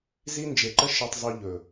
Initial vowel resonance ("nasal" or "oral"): oral